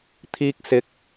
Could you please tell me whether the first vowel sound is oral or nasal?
oral